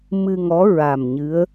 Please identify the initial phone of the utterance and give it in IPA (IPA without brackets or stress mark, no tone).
m